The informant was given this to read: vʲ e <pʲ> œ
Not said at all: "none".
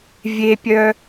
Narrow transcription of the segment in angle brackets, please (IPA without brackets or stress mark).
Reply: pʲ